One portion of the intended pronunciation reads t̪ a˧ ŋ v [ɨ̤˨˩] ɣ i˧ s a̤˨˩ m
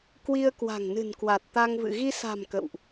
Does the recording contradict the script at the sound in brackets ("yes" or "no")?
yes